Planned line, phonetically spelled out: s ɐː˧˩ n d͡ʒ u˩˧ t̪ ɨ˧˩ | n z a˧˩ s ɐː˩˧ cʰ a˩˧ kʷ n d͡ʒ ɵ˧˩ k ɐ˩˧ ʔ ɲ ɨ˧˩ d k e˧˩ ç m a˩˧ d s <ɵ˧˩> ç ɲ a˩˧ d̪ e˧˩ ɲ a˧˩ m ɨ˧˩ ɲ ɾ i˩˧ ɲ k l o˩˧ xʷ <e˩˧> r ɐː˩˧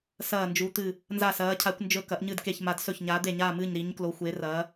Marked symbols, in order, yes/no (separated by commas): yes, yes